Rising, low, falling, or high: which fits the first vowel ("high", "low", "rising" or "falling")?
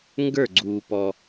falling